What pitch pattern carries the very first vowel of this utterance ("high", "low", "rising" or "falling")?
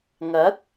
rising